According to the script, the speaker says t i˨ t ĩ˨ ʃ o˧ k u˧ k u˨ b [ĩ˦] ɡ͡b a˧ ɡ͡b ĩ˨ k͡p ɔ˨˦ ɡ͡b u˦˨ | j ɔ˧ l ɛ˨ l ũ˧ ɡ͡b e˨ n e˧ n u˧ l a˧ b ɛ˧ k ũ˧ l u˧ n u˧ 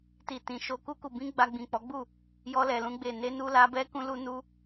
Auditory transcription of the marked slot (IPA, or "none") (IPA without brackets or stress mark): ĩ˧